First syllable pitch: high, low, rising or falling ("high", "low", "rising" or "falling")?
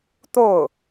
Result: falling